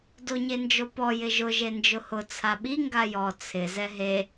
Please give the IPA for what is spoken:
d o ɲ e n d͡ʒ o p ɔ j ɪ ʒ ʊ ʒ e n d͡ʒ ʊ h ʊ t͡sʰ a ɓ i ŋ ɡ a j ɔ t͡sʰ ɪ z ɛ ɦ e

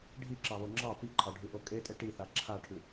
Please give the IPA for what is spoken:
ɖʱ i ǁ ɑ β o ŋ͡ǁ ɑ p i ǃʰ ɑ ɖʱ ʉ ʔ o kʼ e tʼ e ʈ i θ a ǁʰ a ʈʰ ʉ

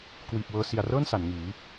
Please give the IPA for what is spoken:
k w iː˨˩ p̚ w ɤː˧ s i˨˩ a̯ r ɤː˥˩ n s a˩˦ n ŋ iː˩˦

